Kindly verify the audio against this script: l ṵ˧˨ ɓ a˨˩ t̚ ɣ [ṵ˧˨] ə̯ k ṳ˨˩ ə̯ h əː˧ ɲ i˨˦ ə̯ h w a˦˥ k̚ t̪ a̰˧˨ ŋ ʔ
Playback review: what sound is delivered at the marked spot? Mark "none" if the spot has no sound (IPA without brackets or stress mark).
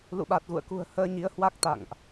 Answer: ṵ˧˨